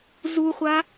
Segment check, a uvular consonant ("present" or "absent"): present